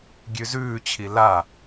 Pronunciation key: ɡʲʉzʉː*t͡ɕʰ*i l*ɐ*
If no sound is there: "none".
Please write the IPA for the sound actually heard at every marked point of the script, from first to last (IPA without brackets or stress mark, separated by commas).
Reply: t͡ɕʰ, a